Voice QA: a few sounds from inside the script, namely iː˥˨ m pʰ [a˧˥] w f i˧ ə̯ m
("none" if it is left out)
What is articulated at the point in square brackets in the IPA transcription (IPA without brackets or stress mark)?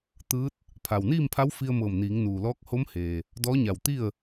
a˧˥